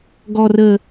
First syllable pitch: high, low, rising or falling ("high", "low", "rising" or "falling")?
low